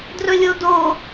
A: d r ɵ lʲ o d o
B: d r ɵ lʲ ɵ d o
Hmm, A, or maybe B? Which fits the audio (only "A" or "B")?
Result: A